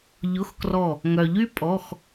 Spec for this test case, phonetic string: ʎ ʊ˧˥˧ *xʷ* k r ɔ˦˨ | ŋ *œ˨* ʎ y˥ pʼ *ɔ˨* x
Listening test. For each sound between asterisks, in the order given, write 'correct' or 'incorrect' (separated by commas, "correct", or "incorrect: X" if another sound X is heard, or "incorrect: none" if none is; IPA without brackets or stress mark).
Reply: incorrect: x, correct, incorrect: ɔ˧˥˧